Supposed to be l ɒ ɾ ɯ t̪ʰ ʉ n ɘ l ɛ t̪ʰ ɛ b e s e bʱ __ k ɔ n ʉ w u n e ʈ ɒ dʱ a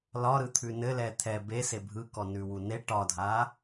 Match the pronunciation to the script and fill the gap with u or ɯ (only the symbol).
ɯ